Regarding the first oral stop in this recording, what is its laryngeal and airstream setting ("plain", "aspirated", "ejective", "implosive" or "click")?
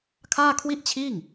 aspirated